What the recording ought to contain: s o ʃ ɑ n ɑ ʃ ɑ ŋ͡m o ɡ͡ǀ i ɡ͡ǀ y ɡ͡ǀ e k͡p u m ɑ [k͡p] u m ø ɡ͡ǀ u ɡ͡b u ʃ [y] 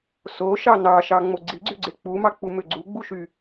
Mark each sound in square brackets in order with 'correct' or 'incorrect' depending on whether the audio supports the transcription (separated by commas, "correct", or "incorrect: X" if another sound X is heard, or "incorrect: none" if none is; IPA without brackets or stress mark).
correct, correct